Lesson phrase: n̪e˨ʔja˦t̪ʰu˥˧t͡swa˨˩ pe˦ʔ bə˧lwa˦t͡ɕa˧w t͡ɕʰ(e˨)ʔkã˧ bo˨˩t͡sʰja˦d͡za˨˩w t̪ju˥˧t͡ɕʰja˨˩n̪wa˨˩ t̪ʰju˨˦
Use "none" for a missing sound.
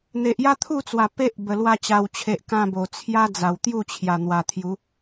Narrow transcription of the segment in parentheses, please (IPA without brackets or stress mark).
e˨